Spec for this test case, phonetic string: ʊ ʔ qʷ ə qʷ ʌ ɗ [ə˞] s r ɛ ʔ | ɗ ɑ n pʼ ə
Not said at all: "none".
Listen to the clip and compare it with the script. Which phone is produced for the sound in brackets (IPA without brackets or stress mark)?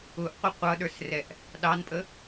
ə˞